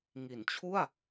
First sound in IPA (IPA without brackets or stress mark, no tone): ŋ